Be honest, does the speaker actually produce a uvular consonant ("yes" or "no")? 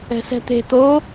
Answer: no